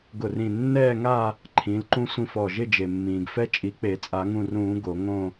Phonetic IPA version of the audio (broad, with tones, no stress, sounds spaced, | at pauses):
ɡ ʊ˧˩ r ĩ˧˩ nː ɛː˥˧ ŋ a˥˧ | ǃʰ ĩ˨˦ l ǃ ũ˥ sʷ ĩ˥˧ f ɔ˧˩ ʒ ɪ˥˧ d͡ʒ e˩ mː ĩː˩ ɡ f ɛ˥ t͡ʃʼ i˨˦ k͡p e˨˩˦ t͡sʼ a˨˩˦ ŋ ũ˧˩ r ũː˨˩˦ ɡ o˨˩˦ ŋ õ˥˧